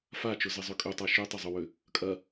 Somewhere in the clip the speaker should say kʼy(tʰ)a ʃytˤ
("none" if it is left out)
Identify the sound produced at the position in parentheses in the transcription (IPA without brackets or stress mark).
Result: tˤ